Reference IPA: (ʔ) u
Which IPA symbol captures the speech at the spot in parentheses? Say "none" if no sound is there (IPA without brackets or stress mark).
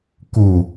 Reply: k